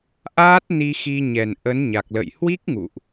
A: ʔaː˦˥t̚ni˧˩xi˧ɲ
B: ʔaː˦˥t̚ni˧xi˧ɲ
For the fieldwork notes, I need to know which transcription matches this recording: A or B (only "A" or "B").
B